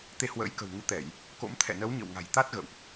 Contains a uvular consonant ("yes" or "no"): no